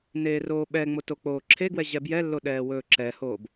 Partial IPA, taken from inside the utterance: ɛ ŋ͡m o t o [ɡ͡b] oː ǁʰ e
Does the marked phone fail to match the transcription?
yes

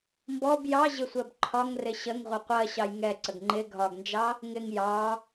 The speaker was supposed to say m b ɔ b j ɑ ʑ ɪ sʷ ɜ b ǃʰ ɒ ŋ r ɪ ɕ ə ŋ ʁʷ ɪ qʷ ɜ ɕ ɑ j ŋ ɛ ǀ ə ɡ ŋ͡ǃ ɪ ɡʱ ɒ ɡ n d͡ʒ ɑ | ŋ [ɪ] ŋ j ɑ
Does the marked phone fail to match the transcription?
no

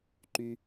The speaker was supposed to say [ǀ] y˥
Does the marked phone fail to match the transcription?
yes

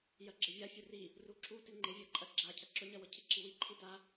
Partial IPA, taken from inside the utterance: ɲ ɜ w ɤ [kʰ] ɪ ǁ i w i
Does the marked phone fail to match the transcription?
yes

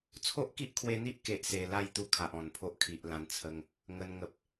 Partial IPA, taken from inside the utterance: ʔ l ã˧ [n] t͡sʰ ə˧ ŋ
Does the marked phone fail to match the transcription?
no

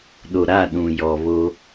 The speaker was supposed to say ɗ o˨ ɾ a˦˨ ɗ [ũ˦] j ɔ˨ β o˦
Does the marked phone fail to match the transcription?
yes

